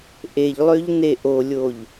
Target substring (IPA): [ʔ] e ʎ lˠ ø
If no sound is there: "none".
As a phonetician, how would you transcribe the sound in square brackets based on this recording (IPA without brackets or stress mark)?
ʔ